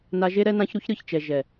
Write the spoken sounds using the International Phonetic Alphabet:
n a˧ ʒ e˦ ɾ ɛ˦ n ã˦ ç ɾ u˦ ç ɾ ɯ˨ ç t͡ʃ ɛ˨ ʒ ɛ˨

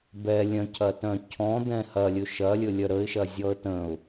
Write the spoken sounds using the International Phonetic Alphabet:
b ɛ lʲ œ̃ cʰ ɐ t œ̃ cʰ ɔ̃ d̪ ɛ̃ h ɐ lʲ ɵ ʃ ɐ lʲ ɵ lʲ œ ɾ ə ɪ̯ ʃ ɐ zʲ ɔ ə̯ t ə̃ ʊ̯

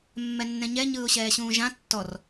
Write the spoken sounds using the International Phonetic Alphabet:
mː ɛ nː ɛ̃ ɲ ɛ ɲ ɯː ʊ̯ ɕ ɛː ɕ ũː ʒ ã tː ɔ r

